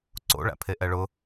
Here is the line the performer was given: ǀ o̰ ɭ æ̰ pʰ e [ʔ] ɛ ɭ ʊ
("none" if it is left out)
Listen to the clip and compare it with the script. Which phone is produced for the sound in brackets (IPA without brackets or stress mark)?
ʔ